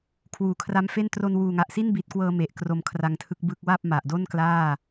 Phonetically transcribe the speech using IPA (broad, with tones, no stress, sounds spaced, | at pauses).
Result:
kʰ w uː˩˦ kʰ r a˦˥ m f e˥˩ n t r o˧ n w uː˨˩ ŋ a˨˩ ʔ s i˥˩ n b iː˨˩ t̚ k w ɤː˧ m e˨˩ ʔ k r o˧ m kʰ r a˧ ŋ tʰ ɯ˦˥ k̚ b ɯ˦˥ k̚ w a˥˩ p̚ m a˨˩ ʔ d o˥˩ n k l aː˥˩